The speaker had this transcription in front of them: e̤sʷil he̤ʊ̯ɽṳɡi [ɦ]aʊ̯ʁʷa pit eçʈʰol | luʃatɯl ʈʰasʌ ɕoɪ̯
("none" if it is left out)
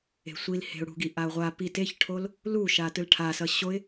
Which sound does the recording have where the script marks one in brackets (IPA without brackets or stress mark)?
ʔ